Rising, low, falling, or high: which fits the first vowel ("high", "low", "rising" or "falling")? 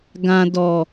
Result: low